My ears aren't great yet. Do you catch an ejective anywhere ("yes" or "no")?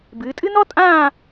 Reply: yes